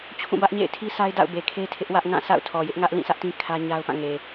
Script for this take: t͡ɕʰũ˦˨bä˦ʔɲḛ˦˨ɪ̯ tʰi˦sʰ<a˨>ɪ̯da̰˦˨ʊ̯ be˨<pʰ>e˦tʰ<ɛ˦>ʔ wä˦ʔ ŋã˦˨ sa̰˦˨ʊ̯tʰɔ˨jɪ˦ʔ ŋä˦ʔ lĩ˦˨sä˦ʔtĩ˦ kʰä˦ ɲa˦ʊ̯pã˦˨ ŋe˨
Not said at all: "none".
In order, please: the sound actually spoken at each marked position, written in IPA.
a˦, kʰ, ɪ˦

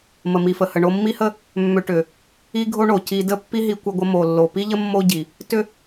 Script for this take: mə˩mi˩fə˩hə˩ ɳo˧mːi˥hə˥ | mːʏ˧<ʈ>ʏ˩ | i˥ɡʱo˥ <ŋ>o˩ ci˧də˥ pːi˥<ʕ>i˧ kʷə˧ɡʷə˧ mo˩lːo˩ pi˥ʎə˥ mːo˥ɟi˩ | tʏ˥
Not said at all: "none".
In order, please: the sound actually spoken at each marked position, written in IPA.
ʈ, ɳ, ɦ

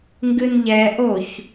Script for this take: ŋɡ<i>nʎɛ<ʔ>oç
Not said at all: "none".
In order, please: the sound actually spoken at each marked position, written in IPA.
ɨ, ʔ

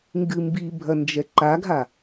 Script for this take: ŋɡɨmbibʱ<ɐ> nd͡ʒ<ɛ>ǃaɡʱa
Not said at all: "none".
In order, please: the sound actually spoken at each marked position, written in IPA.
ɐ, ɛ

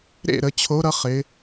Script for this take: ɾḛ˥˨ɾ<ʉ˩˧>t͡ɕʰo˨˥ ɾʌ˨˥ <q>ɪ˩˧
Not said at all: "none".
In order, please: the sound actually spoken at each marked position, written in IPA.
ə˩˧, χ

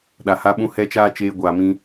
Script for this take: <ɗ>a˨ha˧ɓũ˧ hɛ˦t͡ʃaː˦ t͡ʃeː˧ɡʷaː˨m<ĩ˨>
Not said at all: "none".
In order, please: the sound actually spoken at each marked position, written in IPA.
ɗ, ĩ˧

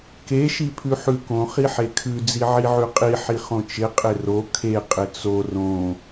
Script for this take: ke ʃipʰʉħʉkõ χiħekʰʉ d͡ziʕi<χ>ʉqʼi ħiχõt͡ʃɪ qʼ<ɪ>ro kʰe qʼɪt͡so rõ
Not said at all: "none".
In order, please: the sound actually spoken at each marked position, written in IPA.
ʕ, ɪ

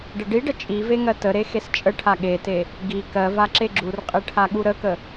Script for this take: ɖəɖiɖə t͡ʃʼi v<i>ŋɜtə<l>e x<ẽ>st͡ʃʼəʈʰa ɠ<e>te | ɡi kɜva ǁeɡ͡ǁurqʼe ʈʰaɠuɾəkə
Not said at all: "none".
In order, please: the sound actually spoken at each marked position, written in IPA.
e, ɾ, e, e

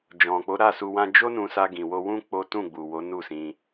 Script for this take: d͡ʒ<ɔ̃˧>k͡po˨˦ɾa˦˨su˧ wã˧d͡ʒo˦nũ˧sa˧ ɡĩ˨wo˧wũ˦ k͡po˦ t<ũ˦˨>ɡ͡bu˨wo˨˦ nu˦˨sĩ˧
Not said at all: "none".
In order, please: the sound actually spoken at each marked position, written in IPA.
ɔ̃˨, ũ˦˨

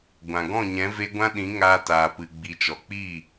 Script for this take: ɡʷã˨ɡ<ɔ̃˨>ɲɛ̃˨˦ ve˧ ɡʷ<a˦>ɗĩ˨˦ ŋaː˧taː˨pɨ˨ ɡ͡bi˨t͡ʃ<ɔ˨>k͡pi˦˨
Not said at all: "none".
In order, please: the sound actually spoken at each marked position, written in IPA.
ɔ̃˦˨, ã˦, ɔ˨

